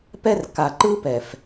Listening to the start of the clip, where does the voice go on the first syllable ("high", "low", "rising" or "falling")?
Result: high